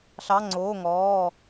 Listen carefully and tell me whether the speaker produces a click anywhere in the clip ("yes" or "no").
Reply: yes